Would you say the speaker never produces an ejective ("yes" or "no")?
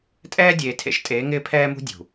no